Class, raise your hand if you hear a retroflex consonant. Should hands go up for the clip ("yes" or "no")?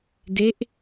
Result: no